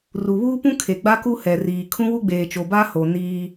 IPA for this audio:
r u˨ β uː˦ p ũ˦ kʰ e˨ ɡ͡b a˦ k u˦ h ɛ˨ r iː˨ kʰ ũ˦ w u˦ ɡ͡b eː˨ t͡ʃ o˨ b a˦ h o˨ n iː˦

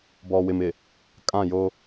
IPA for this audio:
b ɔ˨ w ɪ˨ m ɪ˨ | kʼ ã˦˨ j o˦

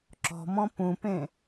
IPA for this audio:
ǁ ɔ̤ m ɔ̃ p ũ p ẽ

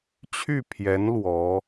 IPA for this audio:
t͡ɕʰ y˥˩ pʰ j ɛ˧˥ n l w ɔ˧˥

